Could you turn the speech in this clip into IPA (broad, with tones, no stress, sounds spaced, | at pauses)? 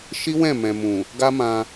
ʃ i˦ w ɛ̃˦˨ m ɛ̃˨ m ũ˨ | ɡ a˦ m ã˧